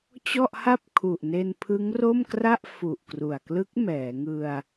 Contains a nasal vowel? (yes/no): no